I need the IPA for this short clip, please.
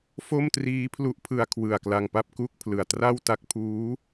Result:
fo˥˩mtriː˦˥pʰlu˦˥ʔ pʰɯ˧a̯kʰwɯ˨˩a̯ kla˧ŋpa˥˩p̚ku˥˩k̚pʰlɯ˨˩a̯ tra˥˩w ta˦˥k̚pʰuː˦˥

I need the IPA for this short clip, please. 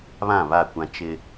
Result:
βã˦˨βa˦˨kʷã˦ t͡ʃɪ˦

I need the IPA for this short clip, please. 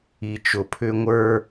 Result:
i˨t͡ʃʊ˨pʰʏ˦ ŋʷə˞˦

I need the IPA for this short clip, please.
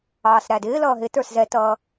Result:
ɑːsɾædɪː lʌːɦɪ tə˞szɛtʌː

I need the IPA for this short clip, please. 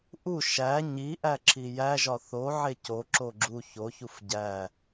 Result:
ʔu ʃæ ɲiʔæǁʰi jæʒɒ θoʕe coǁo ɡ͡ǁu çoçuf ɟæ

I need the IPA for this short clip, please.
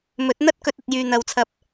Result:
mɵ˨˥t̚n̪ɐ˥t̚ kɵ˧t̚ɐ˨t̚ jyː˨n̪ɐ˨wt͡sʰɐ˧p̚

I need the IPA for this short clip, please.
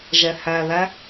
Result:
ʒɛhæðæ

